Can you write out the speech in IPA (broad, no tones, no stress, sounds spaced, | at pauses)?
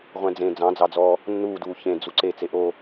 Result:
ʁʷ ɛ̃ d͡z ẽ d͡z ɑ̃ d͡z ɑ d͡z ɔː | nː uː d uː ç ẽ d͡z u ǀ e t͡s e ʔ o